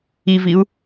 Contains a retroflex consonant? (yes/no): no